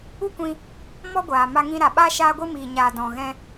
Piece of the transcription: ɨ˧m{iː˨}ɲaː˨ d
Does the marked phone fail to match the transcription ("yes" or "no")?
no